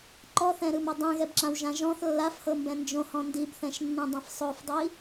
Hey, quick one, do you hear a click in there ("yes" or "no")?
yes